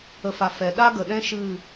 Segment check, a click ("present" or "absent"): absent